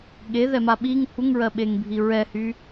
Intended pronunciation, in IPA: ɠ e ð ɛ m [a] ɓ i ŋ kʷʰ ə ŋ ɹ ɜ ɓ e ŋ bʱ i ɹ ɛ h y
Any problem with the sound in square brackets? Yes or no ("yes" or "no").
no